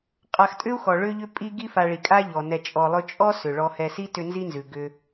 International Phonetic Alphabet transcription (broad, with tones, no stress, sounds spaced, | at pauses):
qʼ a˨ x tʼ ʏ˥ u̯ x ɔ˩ ɭ ʏ˦ ʎ ʏ˦ pʼ i˦ ɡ i˦ f a˨ ɭ i˩ kʼ a˦ ʎ ɔ˩ n ɛ˨ t͡ʃʼ ɔ˨ lˠ ɵ˦ t͡ʃʼ ɔ˥ s ʏ˩ ɭ ɔ˨ h ɛ˨ s i˥ t ʏ˦ n z i˥ n z ʉ˩ ɡ ʏ˨